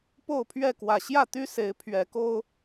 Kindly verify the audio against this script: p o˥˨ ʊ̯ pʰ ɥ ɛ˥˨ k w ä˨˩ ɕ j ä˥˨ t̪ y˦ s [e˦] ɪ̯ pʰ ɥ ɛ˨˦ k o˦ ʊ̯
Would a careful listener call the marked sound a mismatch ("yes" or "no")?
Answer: yes